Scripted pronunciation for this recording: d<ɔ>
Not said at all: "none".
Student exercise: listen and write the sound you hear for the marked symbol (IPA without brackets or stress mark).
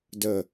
ə